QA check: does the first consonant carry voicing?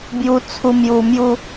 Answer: yes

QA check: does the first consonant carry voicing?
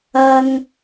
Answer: yes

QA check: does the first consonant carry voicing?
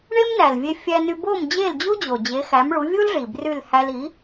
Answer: yes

